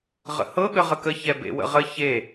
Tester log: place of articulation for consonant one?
uvular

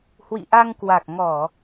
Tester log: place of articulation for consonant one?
glottal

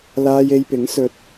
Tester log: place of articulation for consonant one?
alveolar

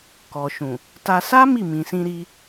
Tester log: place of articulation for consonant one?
velar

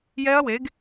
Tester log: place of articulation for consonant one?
palatal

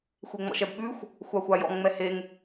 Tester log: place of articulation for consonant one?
velar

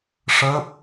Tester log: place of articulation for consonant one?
retroflex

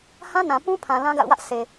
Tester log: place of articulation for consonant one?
glottal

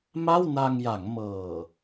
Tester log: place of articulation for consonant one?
labial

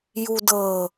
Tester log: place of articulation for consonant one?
palatal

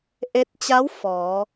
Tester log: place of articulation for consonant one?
glottal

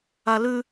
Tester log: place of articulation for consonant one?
alveolar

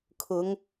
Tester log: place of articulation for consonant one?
velar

